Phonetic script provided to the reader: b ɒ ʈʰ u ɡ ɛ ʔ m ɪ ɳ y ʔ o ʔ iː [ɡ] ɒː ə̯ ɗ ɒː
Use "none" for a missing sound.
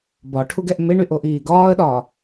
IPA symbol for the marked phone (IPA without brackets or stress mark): ɡ